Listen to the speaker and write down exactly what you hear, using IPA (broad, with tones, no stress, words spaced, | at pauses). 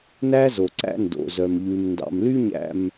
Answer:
næ˦zo˨ ǀæ̰˦ndo̰˨zœ˨mʎʉ˨m ndɑ̰˨mly˦ɲæ̰˨m